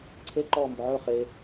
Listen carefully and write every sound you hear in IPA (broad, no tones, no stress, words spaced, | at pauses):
ǀʰe ǃɔːmbʊʕɵ χe